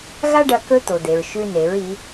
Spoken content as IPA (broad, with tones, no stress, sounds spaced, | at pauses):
ɣ a˥ ɖ ɐ˧ k ɵ˥ t̪ o˩ d̪ e˩ ɹ ʃ ʉ˧ n e˩˧ ɹ i˩˧